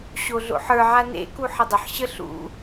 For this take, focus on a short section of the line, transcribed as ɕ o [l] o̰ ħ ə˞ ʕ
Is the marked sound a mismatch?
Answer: yes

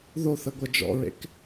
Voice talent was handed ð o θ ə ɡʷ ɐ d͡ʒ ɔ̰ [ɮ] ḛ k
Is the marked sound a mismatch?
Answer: yes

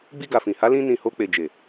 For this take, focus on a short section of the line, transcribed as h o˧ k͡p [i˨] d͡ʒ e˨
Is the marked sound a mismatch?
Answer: yes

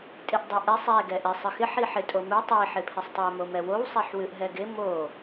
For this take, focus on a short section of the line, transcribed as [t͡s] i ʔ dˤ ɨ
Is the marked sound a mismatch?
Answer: yes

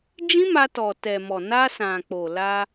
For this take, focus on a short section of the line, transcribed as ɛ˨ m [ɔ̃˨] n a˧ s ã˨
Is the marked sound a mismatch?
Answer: yes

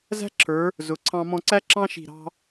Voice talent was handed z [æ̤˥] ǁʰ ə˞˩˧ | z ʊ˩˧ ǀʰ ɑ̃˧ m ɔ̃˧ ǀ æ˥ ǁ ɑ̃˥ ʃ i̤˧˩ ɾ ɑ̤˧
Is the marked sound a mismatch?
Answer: no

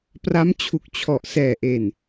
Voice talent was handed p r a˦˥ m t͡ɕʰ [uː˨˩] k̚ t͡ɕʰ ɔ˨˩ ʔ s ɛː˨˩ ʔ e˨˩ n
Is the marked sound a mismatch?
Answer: yes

